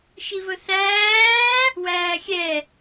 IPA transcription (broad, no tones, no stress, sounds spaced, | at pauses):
ʃ i v ɵ θ æː | w æː xʲ ɛ